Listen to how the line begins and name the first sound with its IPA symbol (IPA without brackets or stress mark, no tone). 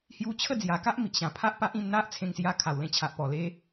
h